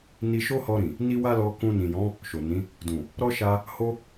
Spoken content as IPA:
n i˧ ʃ o˦ h ɔ˧ ɾ ĩ˨ | n i˦ w a˦ l ɔ˧ k ũ˧ n ĩ˨ j ɔ̃˨˦ | ʃ o˨ n ĩ˨˦ | d ũ˨ | ɾ ɔ˦ ʃ a˧ | h o˧

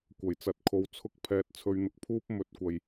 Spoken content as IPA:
kʷ ɐ˨˩ j t͡s ɐ˨˥ t̚ kʰ o˨ w t͡sʰ ʊ˧ k̚ pʰ ɛː˨ t̚ t͡sʰ ɵ˧ ɥ n̪ ʊ˧ k̚ pʰ uː˥ p̚ m ɵ˨˥ t̚ kʷ ɐ˨ j

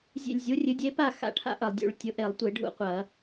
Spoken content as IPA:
zʲ ḛ˧˩ lʲ zʲ u˩˥ rʲ ɨ˩˥ dʲ e˩˥ p a˥˨ x a̰˥˨ ʈʰ a̰˦ ʔ ɐ˩ lˠ dʲ ṵ˧˩˧ ɭ tʲ ʊ˩˥ ʔ e˧˩˧ lˠ tʷ e˧˩˧ ɖʱ ṵ˥˨ qʷ ɐ˧˩˧

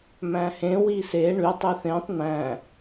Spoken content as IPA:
m æ̃ h ẽ w i s e ɳ y tˤ y θ ẽ tˤ n æ̃

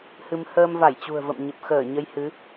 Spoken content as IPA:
h ɨ˧ m h əː˧ m v a˧˩ j t͡ɕ ṳ˨˩ ə̯ v ə̰˧˨ m ɲ ə˨˩ p̚ x əː˧˩ ɲ ə˧ j h ɨ˨˦

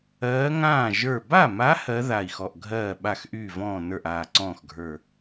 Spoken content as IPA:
ɜː˧˥ ŋ ãː˥˩ ʒ ə˞˧˩ b a˥˩ m a˧˥ h ɜ˧˥ ð a˧˩ i̯ x ɔ˧˩ ʔ ɡʱ ɜː˥˩ ɓ a˥˩ x ʔ yː˥˩ v ɔ̃ː˥˩ n ə˞˥˩ ʔ aː˧˩ ǀ ɔ̃ː˥˩ x ɡʱ ə˞˧˩

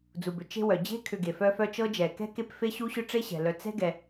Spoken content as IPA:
d͡z u˩ b ʏ˩ t͡ʃ e̤˦ w œ˩ d͡ʑ e̤˥ kʰ ʏ˨ ɡ e˩ f œ˦ f œ˦ t͡ʃ ɤ˥ d͡ʒ ɛ˩ k ɛ̤˥ k e˦ p f e˥ ɕ u˥ ɕ ʏ˥ ʈ͡ʂ e˥ ɕ ɛ̤˩ l œ˨ t͡s ɛ̤˥ ɡ ɛ˨

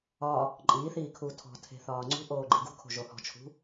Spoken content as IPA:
ɒ | ǃʼ iː θ iː kʰ uː tʰ ɔ̤ tʰ e̤ θ ɒː ŋ͡ǀ ṳ ʔ oː ɡ͡ǃ i ɡ ṳ kʰ o̤ ʒ o h ɔ̤ t͡ʃʰ ṳ

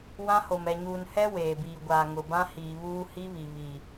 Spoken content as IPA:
w ã˦ h o˨ m ɛ˨ ɲ uː˨ n h ɛ˦ w eː˨ b iː˨ ɡʷ aː˨ ŋ ʊ˨ b ã˦ h iː˨ β uː˦ h i˦ β i˨ β i˨

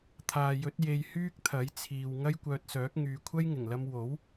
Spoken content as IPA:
t̪ʰ aː˨ j ɵ˨˥ t̚ j e˧ j h yː˥ k̚ t̪ʰ ɐ˨˥ j t͡sʰ iː˨ w ŋ ɐ˥ j kʷ œː˧ t̚ s œː˨˥ k̚ ŋ yː˨ kʷʰ ɐ˥ j ŋ ɪ˨˩ ŋ l ɐ˧ m w o˨˥ w

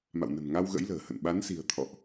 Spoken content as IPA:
m a̰˧˨ w n ə̤˨˩ n ŋ a˧ w ɣ ə̰˧˥ j l ə̤ː˨˩ h ə̰˧˨ n ɓ a˨˦ n s i̤˨˩ ə̯ t̪ʰ ɔ̰˧˨ ʔ

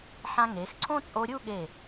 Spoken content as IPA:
ħ ã˧ ŋ e˩˧ x ǀʰ õ˥ t͡sʼ o˧ ɾʲ u˥˧ ɠ e˧˩

